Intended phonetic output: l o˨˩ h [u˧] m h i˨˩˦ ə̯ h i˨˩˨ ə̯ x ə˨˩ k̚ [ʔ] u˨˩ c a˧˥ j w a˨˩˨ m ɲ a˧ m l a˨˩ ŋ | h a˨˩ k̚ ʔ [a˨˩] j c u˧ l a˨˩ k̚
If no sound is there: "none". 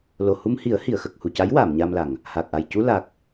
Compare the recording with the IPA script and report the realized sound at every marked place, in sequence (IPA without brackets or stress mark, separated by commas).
u˧, h, a˨˩